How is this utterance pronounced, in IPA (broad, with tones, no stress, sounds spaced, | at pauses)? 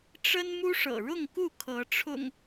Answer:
ʈ͡ʂ ə˦ n m u˦ ʂ ɤ̰˨˩ ɻ ʊ˥˨ ŋ k u˥˨ kʰ ɤ˨˦ ʈ͡ʂʰ ʊ̰˨˩ ŋ